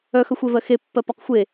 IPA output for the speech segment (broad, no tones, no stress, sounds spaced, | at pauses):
œ x œ xʷ e v ɜ x e pː ɜ p ɒ q xʷ e